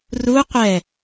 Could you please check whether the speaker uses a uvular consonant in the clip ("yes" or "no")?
yes